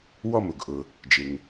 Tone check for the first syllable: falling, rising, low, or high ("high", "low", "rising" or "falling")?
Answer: falling